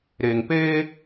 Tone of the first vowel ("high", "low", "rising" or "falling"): low